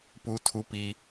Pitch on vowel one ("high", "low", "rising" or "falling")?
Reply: high